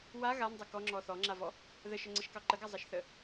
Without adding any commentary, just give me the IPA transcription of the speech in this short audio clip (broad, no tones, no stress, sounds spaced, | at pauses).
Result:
w a ɣ a n dˤ ə k ɔ ŋ͡ǁ ɔ θ ɔ ŋ͡ǁ a v ɔ | ð ə ʃ ə ŋ͡ǀ ə ʃ k ɑ ǃ ə ɡ a zˤ ɑ ʃ θ ə